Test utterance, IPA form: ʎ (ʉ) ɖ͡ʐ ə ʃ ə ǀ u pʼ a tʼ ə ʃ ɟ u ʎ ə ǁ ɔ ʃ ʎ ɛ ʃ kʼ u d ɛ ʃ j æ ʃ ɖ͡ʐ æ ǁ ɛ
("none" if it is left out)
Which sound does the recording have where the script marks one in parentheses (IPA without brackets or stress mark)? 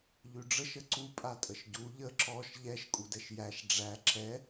ʉ